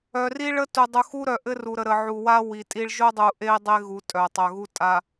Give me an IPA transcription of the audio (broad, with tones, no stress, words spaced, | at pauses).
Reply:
œ˨ri˦ɭə˦tu˨ dˤu˨xu˦ɾœ˨ ʔɘ˦ru˨ɾə˨ ɾə˨ʕu˨wa˦ wi˨tʼi˦ɭ ʒʊ˦dˤu˨ ʔe˦i̯dˤe˦ɣu˨ tʼœ˨tˤœ˨ɣu˦ tʼa˨